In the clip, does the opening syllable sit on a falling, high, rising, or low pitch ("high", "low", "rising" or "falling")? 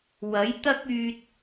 rising